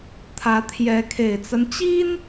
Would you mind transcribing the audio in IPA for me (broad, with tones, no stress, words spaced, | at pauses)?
t̪ʰä˧˥t̪ʰjɛ˧˥ kʰe˨˩ɪ̯t͡sa˦n t͡ɕi˥n